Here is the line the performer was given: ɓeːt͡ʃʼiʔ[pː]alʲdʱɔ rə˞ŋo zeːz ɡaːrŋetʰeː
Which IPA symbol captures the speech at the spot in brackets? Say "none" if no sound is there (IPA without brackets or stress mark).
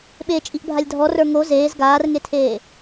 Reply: bʱ